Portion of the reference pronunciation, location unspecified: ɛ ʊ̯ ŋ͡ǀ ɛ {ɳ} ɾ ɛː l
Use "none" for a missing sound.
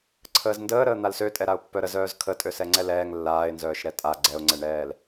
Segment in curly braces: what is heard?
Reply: ɳ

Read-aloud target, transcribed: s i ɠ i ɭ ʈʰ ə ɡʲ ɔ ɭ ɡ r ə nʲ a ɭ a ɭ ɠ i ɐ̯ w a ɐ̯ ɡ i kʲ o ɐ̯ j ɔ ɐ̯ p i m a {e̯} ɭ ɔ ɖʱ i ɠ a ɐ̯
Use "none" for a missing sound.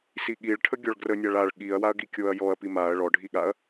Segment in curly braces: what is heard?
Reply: ɐ̯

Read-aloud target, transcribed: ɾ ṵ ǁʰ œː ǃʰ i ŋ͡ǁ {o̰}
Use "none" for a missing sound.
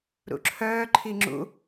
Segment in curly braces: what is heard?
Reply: ṵ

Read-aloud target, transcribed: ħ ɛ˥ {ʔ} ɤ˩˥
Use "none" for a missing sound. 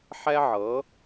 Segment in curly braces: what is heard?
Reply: ʕ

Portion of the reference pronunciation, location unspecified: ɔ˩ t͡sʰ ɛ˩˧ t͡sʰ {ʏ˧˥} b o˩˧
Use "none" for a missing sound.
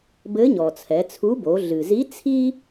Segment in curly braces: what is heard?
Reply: u˧˥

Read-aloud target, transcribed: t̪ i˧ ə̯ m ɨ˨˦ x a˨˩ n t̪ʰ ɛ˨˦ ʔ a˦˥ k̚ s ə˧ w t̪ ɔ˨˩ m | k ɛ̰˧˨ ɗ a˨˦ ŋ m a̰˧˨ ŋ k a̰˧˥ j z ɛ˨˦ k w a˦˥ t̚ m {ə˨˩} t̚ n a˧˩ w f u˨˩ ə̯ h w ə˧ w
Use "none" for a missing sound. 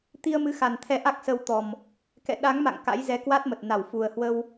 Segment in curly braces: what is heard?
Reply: ə˨˩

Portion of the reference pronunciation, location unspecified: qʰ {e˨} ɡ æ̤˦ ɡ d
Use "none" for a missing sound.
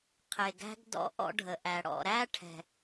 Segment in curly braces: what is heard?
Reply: e˨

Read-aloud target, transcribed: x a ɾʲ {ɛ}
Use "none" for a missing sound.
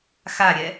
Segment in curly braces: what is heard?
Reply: ɛ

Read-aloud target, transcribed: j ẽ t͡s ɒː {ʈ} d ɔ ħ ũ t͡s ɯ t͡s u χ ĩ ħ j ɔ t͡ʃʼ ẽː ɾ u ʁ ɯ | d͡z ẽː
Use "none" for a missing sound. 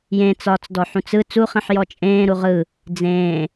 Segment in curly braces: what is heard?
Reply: t͡s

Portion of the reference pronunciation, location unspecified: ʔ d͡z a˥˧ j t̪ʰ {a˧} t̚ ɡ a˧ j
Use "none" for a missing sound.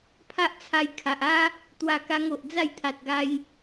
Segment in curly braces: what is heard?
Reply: a˨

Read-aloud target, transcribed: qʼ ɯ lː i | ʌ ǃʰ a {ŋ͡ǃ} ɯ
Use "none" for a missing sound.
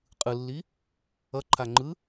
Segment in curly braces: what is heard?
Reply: ŋ͡ǃ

